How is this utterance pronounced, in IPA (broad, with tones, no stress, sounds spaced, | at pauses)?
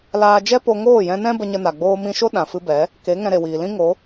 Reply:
l aː˧ d͡ʒ ɛ˦ p o˧ ŋ oː˦˨ j ɛ̃˧ n ɛ̃˦ b ə˧ ɲ ə˧ n a˨ ɡ͡b oː˧ m ĩ˧ ʃ o˦ ɗ ã˨ f ɨ˧ b ɛ˨˦ | k e˨˦ ŋ ɛ̃˧ ɾ e˨ w iː˨ l ĩ˦ ŋ o˨˦